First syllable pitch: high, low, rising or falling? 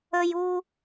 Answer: high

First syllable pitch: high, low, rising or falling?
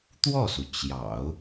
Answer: falling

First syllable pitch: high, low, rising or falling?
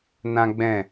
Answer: high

